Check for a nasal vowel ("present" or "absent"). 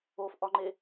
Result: absent